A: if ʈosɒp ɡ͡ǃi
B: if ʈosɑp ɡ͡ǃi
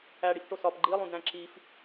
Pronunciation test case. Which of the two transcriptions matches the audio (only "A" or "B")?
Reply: A